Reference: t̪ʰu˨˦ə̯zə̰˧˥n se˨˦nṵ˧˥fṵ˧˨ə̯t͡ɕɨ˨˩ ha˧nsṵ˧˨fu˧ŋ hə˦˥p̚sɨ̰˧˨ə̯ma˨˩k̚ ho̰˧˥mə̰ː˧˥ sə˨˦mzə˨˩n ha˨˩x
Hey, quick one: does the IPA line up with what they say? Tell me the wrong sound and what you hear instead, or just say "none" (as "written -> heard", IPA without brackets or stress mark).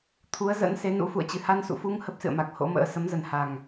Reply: x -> ŋ